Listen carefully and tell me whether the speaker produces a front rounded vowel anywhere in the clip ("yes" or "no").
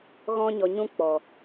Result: no